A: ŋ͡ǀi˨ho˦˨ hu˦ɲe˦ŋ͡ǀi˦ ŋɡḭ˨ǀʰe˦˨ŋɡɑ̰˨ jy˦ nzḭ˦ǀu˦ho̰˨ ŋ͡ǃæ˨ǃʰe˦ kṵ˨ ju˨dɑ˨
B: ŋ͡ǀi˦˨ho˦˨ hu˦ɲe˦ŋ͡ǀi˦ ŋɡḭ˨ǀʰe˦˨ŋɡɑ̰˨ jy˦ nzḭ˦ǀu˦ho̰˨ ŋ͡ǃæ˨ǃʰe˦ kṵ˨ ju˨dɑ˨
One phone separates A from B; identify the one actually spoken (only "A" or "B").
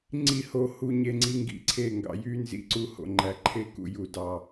B